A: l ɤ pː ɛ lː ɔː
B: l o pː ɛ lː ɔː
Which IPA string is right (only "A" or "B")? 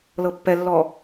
A